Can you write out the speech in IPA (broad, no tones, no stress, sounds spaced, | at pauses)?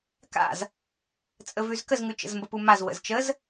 k a̰ z | t͡sʼ ə v ʉ z k ə z ŋ ʉ t͡ʃ ə̰ z m b ə p u m a z w ə̰ z t͡ʃ ə z